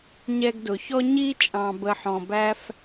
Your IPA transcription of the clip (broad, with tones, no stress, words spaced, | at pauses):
ɲɛ˧ɡdʊ˨çɔ˦ ɲi˦t͡ʃʼɑ̃˨bə˨ħɔ̃˨ bæ˦f